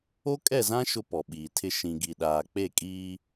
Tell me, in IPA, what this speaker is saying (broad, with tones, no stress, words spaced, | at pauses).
o˦kʼɛ˦˨zã˦ ʃʊ˦pɔ˨ɓiː˨tʰɪ˦ ʃĩ˨ɡi˨ɗaː˨ k͡pe˦˨kʼiː˦